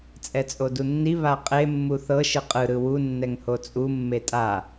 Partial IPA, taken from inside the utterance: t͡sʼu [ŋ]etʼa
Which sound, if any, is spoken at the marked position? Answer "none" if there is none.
mː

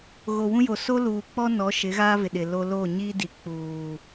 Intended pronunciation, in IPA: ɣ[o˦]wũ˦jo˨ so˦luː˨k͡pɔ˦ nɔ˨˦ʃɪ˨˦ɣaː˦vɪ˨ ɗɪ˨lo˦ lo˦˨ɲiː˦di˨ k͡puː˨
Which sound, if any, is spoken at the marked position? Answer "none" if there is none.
o˨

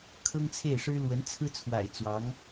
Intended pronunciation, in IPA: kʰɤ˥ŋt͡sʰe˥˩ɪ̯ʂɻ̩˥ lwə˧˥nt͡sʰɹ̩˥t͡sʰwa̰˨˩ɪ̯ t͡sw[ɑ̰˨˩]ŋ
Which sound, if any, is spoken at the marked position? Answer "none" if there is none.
ɑ˧˥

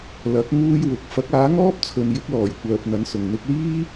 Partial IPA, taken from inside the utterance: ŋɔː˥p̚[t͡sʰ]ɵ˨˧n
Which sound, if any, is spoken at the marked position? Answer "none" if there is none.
t͡sʰ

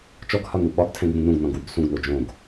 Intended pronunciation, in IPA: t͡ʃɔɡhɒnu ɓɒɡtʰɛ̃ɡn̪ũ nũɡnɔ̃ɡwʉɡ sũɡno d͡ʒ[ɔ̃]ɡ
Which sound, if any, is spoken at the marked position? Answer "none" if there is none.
õ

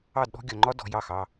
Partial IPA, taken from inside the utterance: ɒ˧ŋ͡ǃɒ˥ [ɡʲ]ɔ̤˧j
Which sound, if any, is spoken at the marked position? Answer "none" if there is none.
d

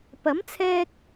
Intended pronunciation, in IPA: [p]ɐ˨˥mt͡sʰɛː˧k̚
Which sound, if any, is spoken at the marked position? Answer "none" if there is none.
p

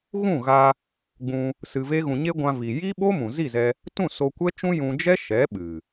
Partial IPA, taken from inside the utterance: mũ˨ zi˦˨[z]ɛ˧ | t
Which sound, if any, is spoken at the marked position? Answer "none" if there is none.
z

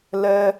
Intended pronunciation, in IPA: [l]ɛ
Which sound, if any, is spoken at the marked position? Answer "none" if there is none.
l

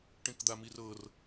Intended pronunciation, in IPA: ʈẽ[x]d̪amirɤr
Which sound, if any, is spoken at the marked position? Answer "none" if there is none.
k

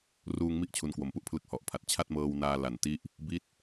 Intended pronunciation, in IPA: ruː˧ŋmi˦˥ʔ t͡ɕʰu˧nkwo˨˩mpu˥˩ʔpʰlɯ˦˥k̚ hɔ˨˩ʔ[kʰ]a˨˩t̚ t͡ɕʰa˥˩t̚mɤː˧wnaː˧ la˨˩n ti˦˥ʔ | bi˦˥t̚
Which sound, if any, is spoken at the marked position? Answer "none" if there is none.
pʰ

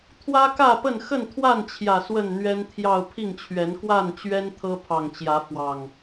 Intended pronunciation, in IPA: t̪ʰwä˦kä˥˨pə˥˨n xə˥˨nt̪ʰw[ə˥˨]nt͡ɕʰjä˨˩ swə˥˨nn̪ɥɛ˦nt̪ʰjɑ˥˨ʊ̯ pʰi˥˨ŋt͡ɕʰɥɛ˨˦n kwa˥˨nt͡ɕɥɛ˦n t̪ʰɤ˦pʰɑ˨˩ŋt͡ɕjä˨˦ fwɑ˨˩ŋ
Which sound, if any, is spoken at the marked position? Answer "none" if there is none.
a˥˨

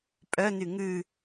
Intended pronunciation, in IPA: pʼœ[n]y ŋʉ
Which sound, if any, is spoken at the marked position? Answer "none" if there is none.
n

